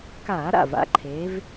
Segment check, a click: present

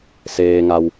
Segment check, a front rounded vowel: absent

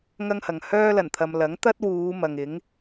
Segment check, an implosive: absent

